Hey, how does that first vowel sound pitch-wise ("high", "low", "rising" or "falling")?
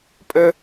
high